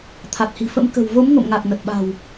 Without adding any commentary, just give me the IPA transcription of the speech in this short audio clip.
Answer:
t̪ʰa˨˩t̚hi̤˨˩fə̰˧˥m kə̤˨˩w vo˨˦mŋo̰˧˨mŋa˨˩k̚ nə˨˩t̚ɓa̤˨˩w

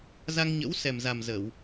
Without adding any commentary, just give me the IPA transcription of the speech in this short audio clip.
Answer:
za˧ŋɲə̰˧˥wsɛ˨˩mza˨˩m zə˧˩˨w

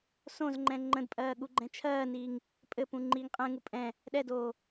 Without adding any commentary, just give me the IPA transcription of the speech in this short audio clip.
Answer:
sõzŋ͡ǃɛ̃ ŋ͡ǃə̃dpʼɜː ɠuɡ͡ǃɛ̃t͡ʃʰɜːniːŋ | pʼɘpũ ŋ͡ǃiːŋqʼɛ̃ŋu pʼɛ̃ | ɗɛdoː

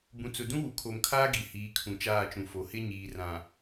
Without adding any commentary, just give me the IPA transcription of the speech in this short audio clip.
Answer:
bũ˨t͡sʊ˨ dũ˦wu˨kʰo˨mkʰaː˦ ɡi˨hiː˨˦ kʰũ˨t͡ʃaː˦˨t͡ʃũ˨fo˨˦ hɪ˦ɲiː˨rã˨

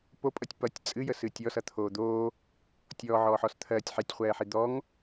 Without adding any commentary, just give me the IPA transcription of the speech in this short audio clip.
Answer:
popʼʌtʲ pʌtʲ t͡sʼɨjəsɨ tʲɔsʌt̪ʰoː d̪oː | tʲɔːʕɔːħɔs t̪ʰɜtʲ ħɛtʲχʷɛːħi d̪ɔŋ

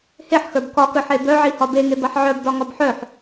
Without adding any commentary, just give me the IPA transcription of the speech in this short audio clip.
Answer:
heħxə˞b kɒkə˞ħe bœʕihɒ beŋe baħʕœb dɒŋɒbħœħ

